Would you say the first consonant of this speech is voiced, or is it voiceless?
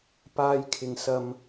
voiceless